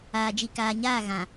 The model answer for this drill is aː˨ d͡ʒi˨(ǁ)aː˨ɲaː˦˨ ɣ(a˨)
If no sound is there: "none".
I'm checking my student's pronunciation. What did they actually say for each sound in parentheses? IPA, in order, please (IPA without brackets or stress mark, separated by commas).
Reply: k, ã˨